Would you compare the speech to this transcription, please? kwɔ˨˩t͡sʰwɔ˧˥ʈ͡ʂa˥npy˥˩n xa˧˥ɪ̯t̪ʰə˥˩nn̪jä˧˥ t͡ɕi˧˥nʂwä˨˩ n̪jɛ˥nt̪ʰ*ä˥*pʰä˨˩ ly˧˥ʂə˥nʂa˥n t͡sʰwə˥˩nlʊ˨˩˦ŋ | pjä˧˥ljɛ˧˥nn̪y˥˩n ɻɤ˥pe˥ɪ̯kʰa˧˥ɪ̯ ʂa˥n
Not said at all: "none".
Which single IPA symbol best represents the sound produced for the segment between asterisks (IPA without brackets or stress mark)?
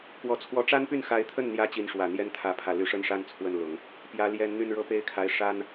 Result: ä˧˥